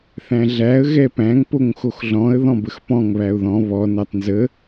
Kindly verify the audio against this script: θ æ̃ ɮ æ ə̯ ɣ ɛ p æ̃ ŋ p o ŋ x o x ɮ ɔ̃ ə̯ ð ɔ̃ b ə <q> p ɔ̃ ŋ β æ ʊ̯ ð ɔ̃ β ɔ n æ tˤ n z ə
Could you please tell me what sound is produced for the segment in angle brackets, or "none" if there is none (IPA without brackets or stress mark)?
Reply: x